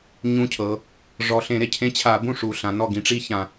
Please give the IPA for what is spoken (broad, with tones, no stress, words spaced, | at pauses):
ɲũ˧˥cʰɤ˩˧ | ʐɔ˨˩ɬẽ˧˩˧ɾe˨˩ cʰẽ˧˥t͡ɕʰa˧˩˧ bũ˥˩ ʂu˨˩ɬã˩˧nɔ˥˩ ɡĩ˩˧ʈ͡ʂi˧˥çã˨˩